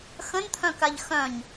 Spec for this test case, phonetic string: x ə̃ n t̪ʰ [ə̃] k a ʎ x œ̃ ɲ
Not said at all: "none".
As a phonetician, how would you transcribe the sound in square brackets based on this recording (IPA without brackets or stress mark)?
œ̃